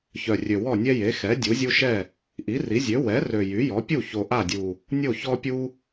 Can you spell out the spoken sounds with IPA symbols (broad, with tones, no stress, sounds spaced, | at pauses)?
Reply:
ç œ˨˩ rʲ ø˨˩ w ɔ˥˩ nʲ ɛ˦ j e˩˥ x ɛ˩˥ dʲ u˩˥ zʲ u˦ ʃ ɛ˥˩ | ʔ i˩˥ r i˩˥ zʲ ø˩˥ w ɛ˩˥ r ø˨˩ j y˩˥ j ɔ˩˥ pʲ u˥˩ ç o˨˩ ʔ a˥˩ dʲ u˨˩ | nʲ o˥˩ ç ɔ˦ pʲ u˦